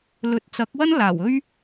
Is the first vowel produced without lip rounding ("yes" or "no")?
no